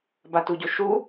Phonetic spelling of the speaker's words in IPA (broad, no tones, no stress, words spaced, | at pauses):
batuɟoʃu